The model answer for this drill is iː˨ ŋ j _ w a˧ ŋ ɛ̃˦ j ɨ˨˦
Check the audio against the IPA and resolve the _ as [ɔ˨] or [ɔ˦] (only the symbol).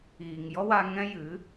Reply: ɔ˦